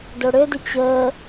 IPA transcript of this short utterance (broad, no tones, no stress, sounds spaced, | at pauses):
d o ɽ ø d ɪ t͡ɕ əː